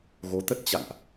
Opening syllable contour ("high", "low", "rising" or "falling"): rising